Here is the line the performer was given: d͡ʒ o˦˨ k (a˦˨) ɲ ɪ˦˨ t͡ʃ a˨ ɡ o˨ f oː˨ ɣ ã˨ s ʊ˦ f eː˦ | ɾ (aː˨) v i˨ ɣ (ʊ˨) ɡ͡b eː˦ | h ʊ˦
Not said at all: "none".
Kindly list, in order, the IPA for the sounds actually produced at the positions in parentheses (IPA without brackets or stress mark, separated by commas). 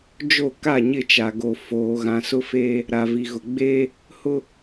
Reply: a˦˨, a˨, ʊ˨